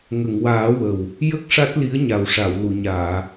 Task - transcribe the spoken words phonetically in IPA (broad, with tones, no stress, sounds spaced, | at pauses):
ŋ ə˨˩˨ ŋ w aː˨˩˦ w ə˨˩ w | j ə˦˥ k̚ ʂ a˦˥ t̚ l i˧˥ ə̯ ɲ a˨˩ w ʂ a˨˩˨ w l u˨˩˨ ɲ aː˨˩˨